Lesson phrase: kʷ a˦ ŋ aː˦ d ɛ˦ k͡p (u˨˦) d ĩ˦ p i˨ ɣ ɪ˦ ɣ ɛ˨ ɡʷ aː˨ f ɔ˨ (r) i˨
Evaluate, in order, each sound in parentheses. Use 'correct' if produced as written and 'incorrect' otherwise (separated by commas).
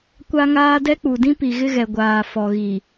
incorrect, incorrect